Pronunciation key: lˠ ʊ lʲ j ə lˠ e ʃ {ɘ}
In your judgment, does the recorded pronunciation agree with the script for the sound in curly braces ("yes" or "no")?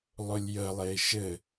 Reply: yes